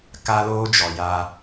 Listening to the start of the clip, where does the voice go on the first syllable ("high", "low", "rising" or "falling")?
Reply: high